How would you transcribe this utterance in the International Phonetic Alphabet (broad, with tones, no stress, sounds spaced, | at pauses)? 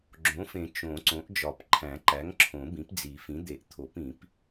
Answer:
ɡ͡ǁ õ˩˥ f ẽ˨˩˦ t͡ʃ õ˨˩˦ ǀ õ˩˥ ʔ d͡ʒ ɒ˨˩˦ p ǃʰ æ̃˨˩˦ ǃ æ˩˥ ŋ ǁʰ õ˨˩˦ b ĩ˩˥ p d͡z i˨˩˦ f ĩ˩˥ d̪ e˨˩˦ ʔ t̪ʰ o˨˩˦ p ĩ˨˩˦ p